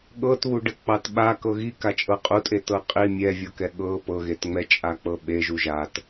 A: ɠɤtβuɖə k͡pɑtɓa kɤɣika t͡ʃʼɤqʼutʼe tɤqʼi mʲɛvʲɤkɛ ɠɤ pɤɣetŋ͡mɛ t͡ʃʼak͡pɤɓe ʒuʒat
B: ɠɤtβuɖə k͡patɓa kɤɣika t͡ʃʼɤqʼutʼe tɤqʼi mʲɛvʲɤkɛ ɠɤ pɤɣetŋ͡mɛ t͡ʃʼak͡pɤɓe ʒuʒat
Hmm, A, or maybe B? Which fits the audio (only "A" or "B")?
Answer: A